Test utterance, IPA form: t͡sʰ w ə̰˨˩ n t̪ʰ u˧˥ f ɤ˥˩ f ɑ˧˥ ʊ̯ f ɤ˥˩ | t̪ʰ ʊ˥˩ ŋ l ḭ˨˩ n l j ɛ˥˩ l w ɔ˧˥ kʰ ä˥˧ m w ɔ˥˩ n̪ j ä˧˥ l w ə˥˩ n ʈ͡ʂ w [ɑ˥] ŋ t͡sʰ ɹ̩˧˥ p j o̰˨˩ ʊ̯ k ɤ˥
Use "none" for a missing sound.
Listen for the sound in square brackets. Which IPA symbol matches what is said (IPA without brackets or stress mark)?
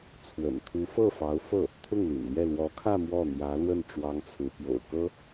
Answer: ɑ˥